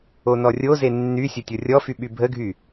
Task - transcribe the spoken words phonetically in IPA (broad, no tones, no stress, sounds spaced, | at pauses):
o n ɔ rʲ o z e nː y sʲ o tʲ o rʲ ɔ f y ɓ y bʱ ə ɡʱ y